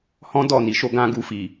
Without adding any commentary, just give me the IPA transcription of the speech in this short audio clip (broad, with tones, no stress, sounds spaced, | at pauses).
h ɔ̃˦ d ɔ˦˨ n i˨ ʃ o˧ ɡ ã˦ ɡ u˧ f i˨